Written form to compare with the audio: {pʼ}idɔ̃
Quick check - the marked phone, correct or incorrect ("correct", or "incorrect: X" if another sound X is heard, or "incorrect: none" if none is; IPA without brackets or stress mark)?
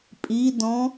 correct